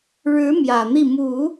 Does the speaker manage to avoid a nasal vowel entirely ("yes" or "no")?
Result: yes